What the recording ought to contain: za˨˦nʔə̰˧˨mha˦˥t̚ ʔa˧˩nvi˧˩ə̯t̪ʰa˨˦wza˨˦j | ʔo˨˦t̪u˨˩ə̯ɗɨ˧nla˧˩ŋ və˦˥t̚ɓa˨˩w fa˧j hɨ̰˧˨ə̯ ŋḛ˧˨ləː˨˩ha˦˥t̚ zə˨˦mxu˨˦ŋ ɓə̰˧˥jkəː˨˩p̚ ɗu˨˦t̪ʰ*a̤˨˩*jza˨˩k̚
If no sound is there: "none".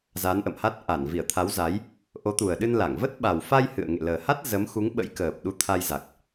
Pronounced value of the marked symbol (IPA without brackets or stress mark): a˧